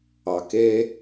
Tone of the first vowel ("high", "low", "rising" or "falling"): low